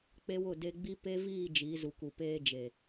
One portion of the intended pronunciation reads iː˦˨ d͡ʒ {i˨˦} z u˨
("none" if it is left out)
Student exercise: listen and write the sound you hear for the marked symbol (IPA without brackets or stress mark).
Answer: i˨˦